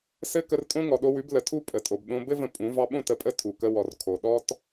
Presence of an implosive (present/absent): present